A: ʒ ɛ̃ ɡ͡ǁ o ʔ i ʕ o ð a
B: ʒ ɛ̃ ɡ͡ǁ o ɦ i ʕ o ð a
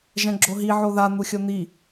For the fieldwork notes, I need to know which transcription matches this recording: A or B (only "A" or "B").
B